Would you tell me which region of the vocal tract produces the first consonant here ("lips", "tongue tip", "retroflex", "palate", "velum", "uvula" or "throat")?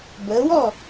lips